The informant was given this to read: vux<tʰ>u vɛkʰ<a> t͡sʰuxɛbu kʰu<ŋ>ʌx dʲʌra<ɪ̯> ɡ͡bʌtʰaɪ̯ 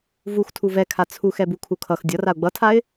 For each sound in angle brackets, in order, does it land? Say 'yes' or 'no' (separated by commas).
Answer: yes, yes, no, no